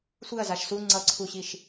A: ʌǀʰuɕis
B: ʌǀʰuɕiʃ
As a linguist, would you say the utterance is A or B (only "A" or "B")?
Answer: B